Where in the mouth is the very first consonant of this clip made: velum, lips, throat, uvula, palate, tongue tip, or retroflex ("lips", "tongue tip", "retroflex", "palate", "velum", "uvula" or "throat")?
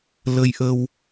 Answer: tongue tip